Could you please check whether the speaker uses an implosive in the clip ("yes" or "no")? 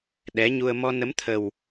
yes